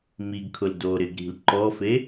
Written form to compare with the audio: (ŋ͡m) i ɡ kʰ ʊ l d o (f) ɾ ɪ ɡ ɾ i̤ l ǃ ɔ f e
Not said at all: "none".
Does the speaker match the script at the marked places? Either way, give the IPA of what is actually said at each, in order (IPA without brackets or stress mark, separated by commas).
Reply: m, none